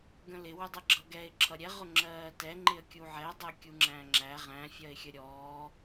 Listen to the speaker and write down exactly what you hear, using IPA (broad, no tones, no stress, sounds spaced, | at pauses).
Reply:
ɡ ə̃ l ɪ w ʊ dˤ ə ɡ͡ǁ ʌ ɡ ɛ ɪ̯ ǁʰ ʌ ɾʲ ɛ ʁ ʊ ŋ͡ǁ ɜː t ɛ ŋ͡ǃ ɪ ə̯ kʲ u ʕ ɛ dˤ ɜ kʲ u ŋ͡ǁ æ̃ ŋ͡ǁ æ ʁ æ̃ fʲ ɜ ɪ̯ xʲ ə ɾʲ ɔː